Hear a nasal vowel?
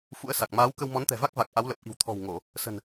no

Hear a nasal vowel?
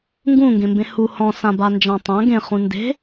yes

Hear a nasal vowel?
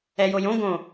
yes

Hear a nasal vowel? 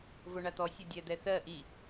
no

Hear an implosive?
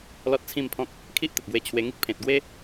no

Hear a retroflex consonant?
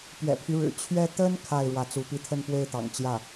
yes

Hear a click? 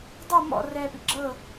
yes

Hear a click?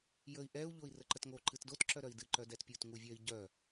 yes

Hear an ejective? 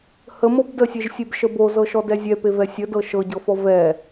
no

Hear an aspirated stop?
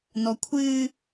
yes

